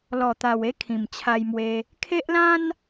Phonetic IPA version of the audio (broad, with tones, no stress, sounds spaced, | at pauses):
l ɔ˨˩ t̪ a˨˩ w e˦ kʰ ĩ˨˩ m t͡ɕʰ a˧ j m w e˧ | kʰ e˦ ʔ l ã˦ n